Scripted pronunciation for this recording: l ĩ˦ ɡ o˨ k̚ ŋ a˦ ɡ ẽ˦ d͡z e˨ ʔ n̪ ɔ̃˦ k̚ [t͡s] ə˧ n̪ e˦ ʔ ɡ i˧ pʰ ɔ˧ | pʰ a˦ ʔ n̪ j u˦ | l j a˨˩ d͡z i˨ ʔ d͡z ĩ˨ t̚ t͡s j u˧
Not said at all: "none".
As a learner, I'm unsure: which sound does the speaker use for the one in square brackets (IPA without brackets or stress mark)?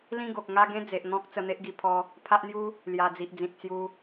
t͡s